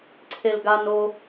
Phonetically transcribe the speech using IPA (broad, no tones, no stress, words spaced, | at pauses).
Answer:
ǀʰelɡano